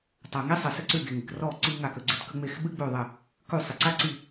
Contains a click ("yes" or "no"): yes